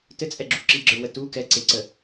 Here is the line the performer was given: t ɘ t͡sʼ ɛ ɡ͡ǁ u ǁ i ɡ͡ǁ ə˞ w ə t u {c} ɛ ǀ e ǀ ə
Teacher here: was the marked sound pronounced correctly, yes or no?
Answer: no